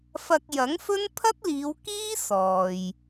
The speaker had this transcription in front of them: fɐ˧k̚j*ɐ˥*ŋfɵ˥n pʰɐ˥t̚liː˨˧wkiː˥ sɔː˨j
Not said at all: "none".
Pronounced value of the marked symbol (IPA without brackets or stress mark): ɐ˨˥